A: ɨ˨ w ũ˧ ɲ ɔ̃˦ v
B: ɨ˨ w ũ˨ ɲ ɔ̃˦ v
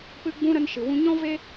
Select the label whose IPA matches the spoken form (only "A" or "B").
A